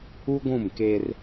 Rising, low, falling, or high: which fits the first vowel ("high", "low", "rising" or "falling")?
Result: high